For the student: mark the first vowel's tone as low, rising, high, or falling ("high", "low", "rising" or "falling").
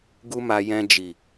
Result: high